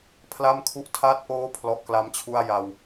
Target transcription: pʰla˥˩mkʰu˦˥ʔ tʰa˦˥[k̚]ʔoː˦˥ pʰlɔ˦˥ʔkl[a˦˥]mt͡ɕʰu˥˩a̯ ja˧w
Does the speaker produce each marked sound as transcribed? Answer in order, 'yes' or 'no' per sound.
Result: no, yes

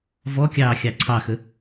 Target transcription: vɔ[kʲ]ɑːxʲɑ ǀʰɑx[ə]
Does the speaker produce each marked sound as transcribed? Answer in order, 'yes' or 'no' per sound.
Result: yes, yes

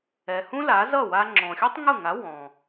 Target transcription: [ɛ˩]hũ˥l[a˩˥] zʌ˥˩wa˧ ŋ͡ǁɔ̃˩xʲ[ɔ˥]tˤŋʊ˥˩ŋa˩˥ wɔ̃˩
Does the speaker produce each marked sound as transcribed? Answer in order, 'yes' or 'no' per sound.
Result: yes, yes, yes

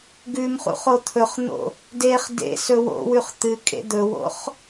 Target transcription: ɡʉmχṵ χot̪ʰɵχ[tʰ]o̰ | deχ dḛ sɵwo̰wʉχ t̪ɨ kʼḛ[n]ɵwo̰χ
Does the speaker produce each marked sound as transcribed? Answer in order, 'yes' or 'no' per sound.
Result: no, no

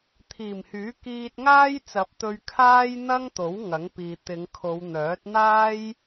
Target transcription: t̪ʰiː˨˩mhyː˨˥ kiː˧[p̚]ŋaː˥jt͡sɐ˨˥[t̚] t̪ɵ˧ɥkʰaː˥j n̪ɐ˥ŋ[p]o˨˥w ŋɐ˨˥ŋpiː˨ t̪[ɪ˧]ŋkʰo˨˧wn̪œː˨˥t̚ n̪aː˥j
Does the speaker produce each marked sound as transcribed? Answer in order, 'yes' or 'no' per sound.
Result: no, no, no, no

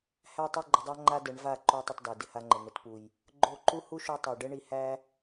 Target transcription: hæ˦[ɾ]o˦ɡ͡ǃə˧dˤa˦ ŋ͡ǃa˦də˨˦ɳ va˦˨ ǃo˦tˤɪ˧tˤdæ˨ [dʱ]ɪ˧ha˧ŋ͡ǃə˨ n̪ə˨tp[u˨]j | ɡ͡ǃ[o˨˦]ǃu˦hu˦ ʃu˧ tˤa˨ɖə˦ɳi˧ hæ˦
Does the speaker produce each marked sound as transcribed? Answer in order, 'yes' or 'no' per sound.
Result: no, no, yes, no

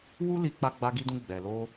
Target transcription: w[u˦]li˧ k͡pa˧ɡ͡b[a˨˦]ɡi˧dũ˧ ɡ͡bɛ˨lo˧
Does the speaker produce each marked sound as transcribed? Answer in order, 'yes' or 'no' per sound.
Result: yes, no

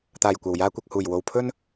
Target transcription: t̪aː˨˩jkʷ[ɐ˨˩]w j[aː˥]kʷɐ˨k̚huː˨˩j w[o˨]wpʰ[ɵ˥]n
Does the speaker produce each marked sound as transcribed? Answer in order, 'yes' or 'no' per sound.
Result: yes, no, yes, yes

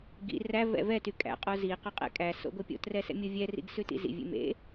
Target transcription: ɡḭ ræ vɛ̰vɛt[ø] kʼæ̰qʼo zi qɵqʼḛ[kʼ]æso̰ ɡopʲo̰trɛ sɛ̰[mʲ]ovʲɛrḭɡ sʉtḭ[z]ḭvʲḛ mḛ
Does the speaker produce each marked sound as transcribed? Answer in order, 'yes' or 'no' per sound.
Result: no, yes, yes, yes

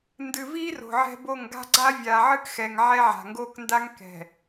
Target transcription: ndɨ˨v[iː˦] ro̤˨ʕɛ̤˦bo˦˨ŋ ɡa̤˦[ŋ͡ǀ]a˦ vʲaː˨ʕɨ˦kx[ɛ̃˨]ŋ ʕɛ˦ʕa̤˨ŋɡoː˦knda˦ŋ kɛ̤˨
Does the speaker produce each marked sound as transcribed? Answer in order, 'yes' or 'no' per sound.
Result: yes, no, no

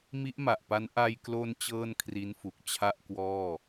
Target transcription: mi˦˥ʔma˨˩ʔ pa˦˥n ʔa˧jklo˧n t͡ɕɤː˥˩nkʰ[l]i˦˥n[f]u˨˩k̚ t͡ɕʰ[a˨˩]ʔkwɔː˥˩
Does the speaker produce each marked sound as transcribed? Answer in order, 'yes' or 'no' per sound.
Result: no, yes, no

